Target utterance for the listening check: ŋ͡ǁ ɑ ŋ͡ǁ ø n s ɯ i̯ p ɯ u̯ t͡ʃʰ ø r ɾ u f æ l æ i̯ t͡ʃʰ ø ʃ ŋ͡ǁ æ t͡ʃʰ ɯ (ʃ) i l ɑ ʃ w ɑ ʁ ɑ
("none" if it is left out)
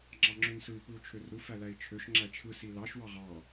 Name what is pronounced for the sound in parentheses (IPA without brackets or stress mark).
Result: s